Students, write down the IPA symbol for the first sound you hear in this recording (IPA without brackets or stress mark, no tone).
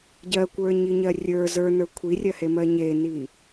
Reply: ɟ